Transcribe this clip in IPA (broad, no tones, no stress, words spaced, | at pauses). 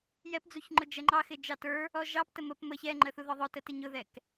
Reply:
jɛpd͡zuç ŋ͡ǃʊd͡ʒɛŋ͡ǃɑ xɪd͡ʒɑtə˞ | ɔʒɑptə məp məç ɛŋ͡ǃəθu ðɔðˤʊtətɪ ɲʊðɛk